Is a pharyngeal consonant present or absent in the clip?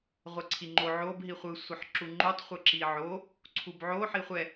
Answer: present